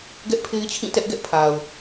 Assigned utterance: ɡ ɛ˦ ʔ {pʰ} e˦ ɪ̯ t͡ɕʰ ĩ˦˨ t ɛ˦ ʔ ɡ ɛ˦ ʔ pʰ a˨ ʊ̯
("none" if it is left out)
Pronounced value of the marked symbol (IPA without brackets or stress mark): pʰ